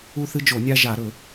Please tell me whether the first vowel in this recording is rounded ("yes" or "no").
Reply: yes